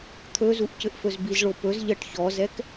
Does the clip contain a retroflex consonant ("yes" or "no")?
yes